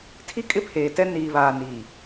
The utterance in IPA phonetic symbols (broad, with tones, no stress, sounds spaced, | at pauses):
tʰ i˦ kʼ ɪ˦ pʰ eː˨ t ɛ˦ n iː˨ β aː˨ n iː˨